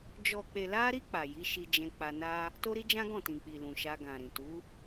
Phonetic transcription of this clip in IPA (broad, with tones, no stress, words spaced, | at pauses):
d͡ʒɔ˨k͡pe˨la˧ɾi˧ k͡pa˨ji˨˦ʃi˧d͡ʒɛ̃˧ k͡pa˧ na˦ | to˦ɾi˦d͡ʒã˦ɡɔ̃˦˨ tĩ˨k͡pi˨ lũ˨ʃa˧ɡã˨ɾĩ˨ tu˨˦